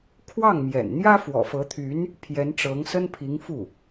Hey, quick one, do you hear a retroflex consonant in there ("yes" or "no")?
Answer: yes